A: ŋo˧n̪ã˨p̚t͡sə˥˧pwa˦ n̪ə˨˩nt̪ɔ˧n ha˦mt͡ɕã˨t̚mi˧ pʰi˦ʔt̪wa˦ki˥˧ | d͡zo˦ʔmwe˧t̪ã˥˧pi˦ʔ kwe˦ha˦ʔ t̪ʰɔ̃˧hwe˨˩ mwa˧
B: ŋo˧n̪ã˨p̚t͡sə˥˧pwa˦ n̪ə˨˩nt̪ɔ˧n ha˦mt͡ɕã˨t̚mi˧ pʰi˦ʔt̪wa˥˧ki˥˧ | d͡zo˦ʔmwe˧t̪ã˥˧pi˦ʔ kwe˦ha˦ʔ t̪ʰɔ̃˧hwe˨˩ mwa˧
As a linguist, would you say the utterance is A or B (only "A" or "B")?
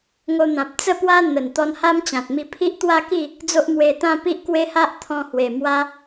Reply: B